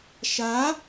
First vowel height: low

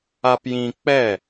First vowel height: low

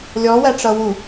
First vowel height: mid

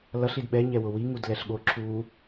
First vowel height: mid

